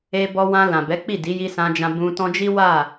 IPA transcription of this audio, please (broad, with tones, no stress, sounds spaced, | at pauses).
e˧ b ɔ˧ w ã˧ l ã˨ b ɛ˨˦ k͡p i˦˨ d i˨˦ j i˧ s ã˧ d͡ʒ ã˧ b ũ˧ t ɔ̃˦ d͡ʒ i˦ w a˦˨